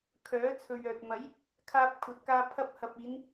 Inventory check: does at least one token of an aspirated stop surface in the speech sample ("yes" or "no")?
yes